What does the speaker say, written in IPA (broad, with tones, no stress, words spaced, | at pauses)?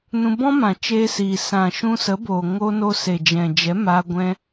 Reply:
nũ˧bɔ̃˦mã˨ t͡ʃeː˧siː˨ sã˨ ʃũ˧sə˨˦boː˨ ŋo˧no˧ se˨d͡ʒɛ̃˨d͡ʒɛ˨˦ maː˧ ɡʷɛ̃˧